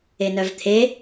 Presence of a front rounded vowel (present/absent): present